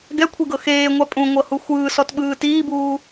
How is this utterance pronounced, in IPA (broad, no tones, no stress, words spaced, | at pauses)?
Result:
ɡɛkʷʰiɡɤ xeːŋʷa pʼũŋʷɤhu xʷɯːsɔtɓɯː tiːbuː